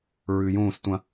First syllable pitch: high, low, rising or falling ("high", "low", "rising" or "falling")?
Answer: low